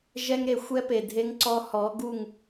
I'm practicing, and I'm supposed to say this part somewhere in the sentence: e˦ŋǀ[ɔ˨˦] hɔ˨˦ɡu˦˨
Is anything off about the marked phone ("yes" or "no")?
yes